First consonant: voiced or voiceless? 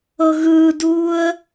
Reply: voiced